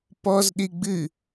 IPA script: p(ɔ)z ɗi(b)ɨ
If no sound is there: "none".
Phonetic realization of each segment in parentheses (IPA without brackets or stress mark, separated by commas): ɔ, ɡ͡b